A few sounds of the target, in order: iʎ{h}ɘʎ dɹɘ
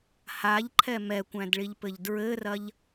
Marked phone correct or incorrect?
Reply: incorrect